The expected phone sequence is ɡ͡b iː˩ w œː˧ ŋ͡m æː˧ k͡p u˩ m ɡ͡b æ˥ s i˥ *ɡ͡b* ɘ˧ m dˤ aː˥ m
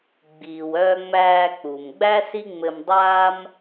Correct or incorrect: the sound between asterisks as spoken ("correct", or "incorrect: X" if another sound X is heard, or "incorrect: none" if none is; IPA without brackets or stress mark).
incorrect: ŋ͡m